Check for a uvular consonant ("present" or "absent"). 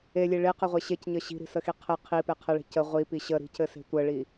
present